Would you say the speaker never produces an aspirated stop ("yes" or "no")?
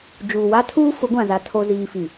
no